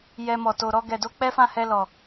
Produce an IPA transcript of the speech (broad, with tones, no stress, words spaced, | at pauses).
jɛ˧mɔ˨ to˨ɾɔ˧ ɡɛ˨do˧ k͡pɛ˦fã˦˨hɛ˧lɔ˨